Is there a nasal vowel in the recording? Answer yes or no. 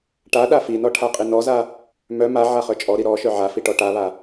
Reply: no